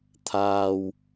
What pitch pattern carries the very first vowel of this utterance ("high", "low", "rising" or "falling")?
low